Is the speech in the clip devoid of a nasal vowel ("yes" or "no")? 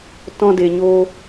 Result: no